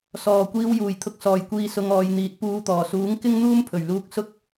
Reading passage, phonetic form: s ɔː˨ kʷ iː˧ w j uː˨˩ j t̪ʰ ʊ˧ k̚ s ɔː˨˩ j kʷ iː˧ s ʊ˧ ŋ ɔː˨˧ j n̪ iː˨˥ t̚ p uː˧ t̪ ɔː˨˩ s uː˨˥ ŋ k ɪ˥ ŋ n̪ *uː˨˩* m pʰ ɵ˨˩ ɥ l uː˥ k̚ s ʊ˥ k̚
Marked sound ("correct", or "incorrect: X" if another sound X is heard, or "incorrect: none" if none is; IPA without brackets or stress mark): incorrect: uː˥